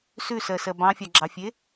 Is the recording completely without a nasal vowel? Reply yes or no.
no